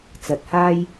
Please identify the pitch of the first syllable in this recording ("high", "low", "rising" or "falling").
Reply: rising